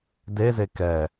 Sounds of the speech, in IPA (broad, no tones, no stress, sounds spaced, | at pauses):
d e z e k ɛ